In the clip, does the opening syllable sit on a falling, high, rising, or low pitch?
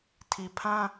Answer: low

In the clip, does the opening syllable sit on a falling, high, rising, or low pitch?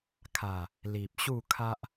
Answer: low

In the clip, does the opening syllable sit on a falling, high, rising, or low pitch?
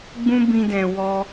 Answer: high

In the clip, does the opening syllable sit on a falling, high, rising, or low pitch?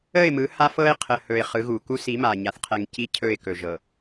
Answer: falling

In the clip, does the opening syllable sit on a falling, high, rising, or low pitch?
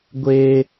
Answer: high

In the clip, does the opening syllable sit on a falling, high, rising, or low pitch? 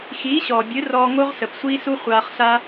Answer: rising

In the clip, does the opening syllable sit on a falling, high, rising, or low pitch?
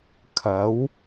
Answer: rising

